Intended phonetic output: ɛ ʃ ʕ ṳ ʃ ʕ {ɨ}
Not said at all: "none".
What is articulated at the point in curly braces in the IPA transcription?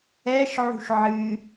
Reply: ɨ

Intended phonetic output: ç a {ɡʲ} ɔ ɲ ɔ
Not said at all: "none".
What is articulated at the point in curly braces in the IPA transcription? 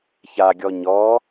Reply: ɡʲ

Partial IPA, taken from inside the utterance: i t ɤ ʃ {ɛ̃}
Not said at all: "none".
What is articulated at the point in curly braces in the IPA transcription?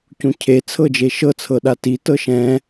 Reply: ɛ̃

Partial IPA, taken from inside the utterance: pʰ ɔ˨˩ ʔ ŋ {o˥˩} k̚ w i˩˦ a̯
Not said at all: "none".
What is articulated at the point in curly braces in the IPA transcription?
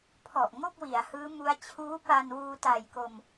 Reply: o˥˩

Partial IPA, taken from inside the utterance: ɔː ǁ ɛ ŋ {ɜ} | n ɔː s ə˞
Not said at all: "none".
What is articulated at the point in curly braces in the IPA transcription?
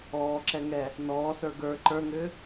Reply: ɛ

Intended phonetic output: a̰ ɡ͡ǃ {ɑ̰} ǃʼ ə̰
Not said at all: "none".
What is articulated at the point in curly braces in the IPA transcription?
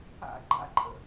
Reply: a̰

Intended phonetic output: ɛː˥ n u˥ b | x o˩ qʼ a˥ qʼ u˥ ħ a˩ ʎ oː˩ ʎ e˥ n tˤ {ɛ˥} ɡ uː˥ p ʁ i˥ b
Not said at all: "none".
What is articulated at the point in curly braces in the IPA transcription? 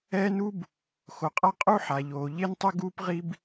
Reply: ɘ˥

